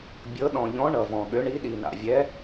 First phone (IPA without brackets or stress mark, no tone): bʲ